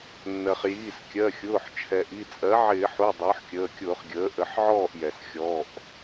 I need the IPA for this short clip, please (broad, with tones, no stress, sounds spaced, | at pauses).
nː ɜ˩ χ j iː˩˧˩ s kʲ ɜ˩˧˩ xʲ ʊː˩˧˩ ħ t͡ʃʰ ɛ˩ ʔ i˩˧˩ t͡sʼ ɜ˩˥ ʕ ɪː˧˩˧ ħ u˩˧˩ dˤ ʊː˩˥ ħ kʲ əː˩˧˩ kʲ ʊː˧˩˧ χ ɡʲ əː˩˥ ʔ ə˧˩˧ ħ ʕ ɔː˥˩ ʔ j ɛ˩ s xʲ ɔ˩˧˩ ʔ